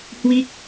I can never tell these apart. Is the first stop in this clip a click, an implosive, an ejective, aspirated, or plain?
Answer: plain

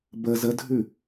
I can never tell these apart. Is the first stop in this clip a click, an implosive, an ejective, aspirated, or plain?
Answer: plain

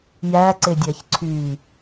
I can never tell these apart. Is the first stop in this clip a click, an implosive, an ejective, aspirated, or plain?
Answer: click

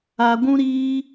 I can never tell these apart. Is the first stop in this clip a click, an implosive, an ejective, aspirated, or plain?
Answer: plain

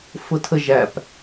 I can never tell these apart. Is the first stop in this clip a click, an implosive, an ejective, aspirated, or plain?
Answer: aspirated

